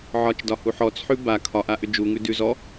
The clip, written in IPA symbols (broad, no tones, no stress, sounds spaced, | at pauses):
ʕ ɒ t͡ʃ d ɒ h u ħ ɔ t͡s ħ ʉ b a kʰ ɒ ʔ a ʔ ʏ d͡ʒ u ŋ ʉ d ʉ z ɔ